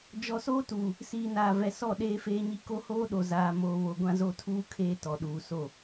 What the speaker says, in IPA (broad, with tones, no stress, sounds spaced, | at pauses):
d͡ʒ ɔ˨ s oː˦ t uː˨ | s iː˨ n aː˨ v ɛ˨ s ɔ˦˨ ɗ eː˦ f eː˦ ɲ i˦ k o˦ h oː˦ ɗ o˨ z aː˨ m oː˨ β o˨ ɡʷ ã˦ z o˦ tʰ uː˦ kʰ eː˦ t ɔ˨ ɗ uː˨ s o˦˨